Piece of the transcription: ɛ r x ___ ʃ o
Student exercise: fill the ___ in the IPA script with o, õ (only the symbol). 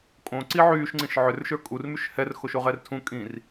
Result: o